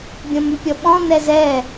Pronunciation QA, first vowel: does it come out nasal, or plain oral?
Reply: nasal